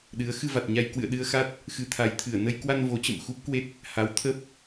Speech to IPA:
ɗɨ˨˦ə̯ xɨ˧va˨˩t̚ɲa˧j kwɨ̰˧˨ə̯ɗɨ˧ə̯xa˦˥t̚ | xɨ˨˦t̪ʰa˨˦jt̪ʰɨ˧˩ə̯ nə˧jkwa˧n vo˨˦t͡ɕə̰˧˨m xu˦˥p̚kwe˦˥t̚ | ha˨˦wt̪ʰə˦˥p̚

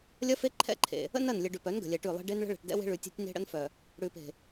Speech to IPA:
lʲɐ˦fe˦ǃʰɛ̰˦˨ǃʰḛ˨ | ə̰˦nɐ˦˨nlʲɘ˨ ɖʉ˨pœ˨˦n ɡə̤˨lʲɛ˨ʈʉ˦˨lˠe̤˦ ɖe˦nɭə̤˦ ɭɛ̤˨ʈdɛ̰˦we̤˦ ɭʉ˨tʲe̤˦tʲne̤˦ ɽə̰˦nfœ˨ | ɽʉ˨pe̤˨

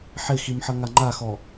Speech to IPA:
ħɪximħʌ ŋaŋ͡ǃaxɔ

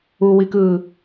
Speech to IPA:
uwikɯː

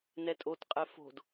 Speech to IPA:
nɛtʼotqʼɛ fo̤d

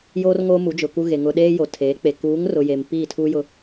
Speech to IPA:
jo˨rŋo˨ mu˨˦d͡ʒʊ˨ku˦ɣe˨ ŋʊ˨ ɗeː˦jo˨tʰeː˨˦k͡pe˨ kuː˨˦ŋrʊ˨ je˨mpi˦˨tʰu˦jʊ˦

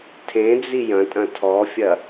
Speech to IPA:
tʰẽd͡zi jɐ̃tʼɐ̃ tʰɔfʲɐ

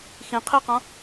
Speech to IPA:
xĩqʰiqɔ̃

